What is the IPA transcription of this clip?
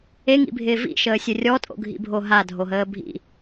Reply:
e ŋ ḭ bʱ ɪː v ḭ ʃ əː sʲ ɵ rʲ ɔ tʼ o̰ ɡʱ ḭ bʱ o ɦ a dʱ o ɦ əː bʱ ḭ

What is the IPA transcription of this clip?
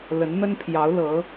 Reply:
l ə˧˥ n n̪ ə˥ n pʰ j ɑ˧˥ ʊ̯ l ɤ˧˥

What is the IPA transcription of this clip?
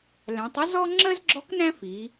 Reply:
l æ̃˩˧ tˤ ə˥ z ɔ˥ ŋ͡ǁ ɜ˥ z ɡ͡ǁ ɔ˧˥ k n æ̃˥ f i˩˧

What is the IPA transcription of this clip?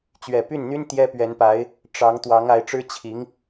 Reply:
t͡ɕ ɥ ɛ˨˩ p y˥˩ n n̪ y˥ n t̪ j ɛ˥ p ɥ ɛ˧˥ n p a˧˥ ɪ̯ | ʈ͡ʂ ɑ˧˥ ŋ t̪ w ɑ˧˥ ŋ a˧˥ ɪ̯ ʈ͡ʂ ɻ̩˥ t͡ɕʰ i˧˥ ŋ

